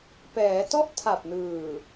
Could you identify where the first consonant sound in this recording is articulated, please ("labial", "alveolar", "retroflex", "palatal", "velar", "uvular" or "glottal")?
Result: labial